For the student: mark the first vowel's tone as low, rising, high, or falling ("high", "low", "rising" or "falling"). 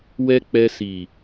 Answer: high